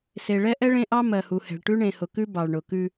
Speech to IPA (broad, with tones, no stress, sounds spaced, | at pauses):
s e˨ ɭ ɛ˦ ʔ ɛ˦ ɭ ẽ˦ ʔ ɑ˦ m ɜ˨ h u˨ h ɛ̤˨ ɭ ʈ ʉ˦ ɳ ẽ˨ h ʊ˨ k ʉ˦ b ɑ˨ ɭ ɳ ʊ˨ k ʉ˦